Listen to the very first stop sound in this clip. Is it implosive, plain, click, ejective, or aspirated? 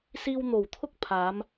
aspirated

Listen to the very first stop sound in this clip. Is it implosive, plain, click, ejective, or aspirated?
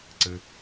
click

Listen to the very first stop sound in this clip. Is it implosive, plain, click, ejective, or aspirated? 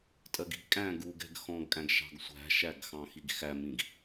ejective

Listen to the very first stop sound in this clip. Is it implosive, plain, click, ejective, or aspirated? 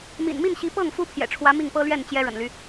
plain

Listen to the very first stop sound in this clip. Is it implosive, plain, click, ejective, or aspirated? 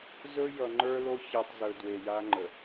click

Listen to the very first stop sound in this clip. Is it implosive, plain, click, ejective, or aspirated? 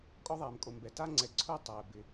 ejective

